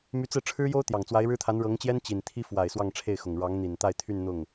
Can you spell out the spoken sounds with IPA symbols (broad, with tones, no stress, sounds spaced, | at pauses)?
m y˧˥ t͡s ɹ̩˥˩ ʈ͡ʂʰ ɻ̩˥ j o˥ ʊ̯ t̪ j ɑ˨˩ ŋ t͡s w a˧˥ ɪ̯ ɻ ɻ̩˥ t̪ʰ a˧˥ n ɻ ɤ˧˥ ŋ t͡ɕ j ɛ˥ n t͡ɕ i˨˩ n t̪ʰ i˥ f w a˨˩ ɪ̯ s w ɑ˥˧ ŋ ʈ͡ʂʰ e˥˩ ɪ̯ x ʊ˨˩ ŋ ɻ ɑ˧˥ ŋ n̪ i˨˩ n t̪ a˥˧ ɪ̯ t̪ʰ y˥˧ n n̪ ʊ˥˩ ŋ